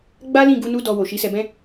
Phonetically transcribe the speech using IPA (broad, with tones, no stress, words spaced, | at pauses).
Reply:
ɡ͡ba˦lĩ˦˨ɡu˧ nu˦dɔ˧ wo˨ʃi˨˦sɛ˧bɛ̃˦